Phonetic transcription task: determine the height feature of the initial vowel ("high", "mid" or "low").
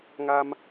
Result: low